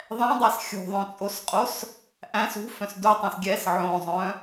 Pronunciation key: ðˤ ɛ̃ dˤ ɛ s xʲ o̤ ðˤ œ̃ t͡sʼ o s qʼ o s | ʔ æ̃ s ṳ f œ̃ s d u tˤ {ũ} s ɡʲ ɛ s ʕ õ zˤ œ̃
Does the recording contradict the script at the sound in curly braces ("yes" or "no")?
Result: no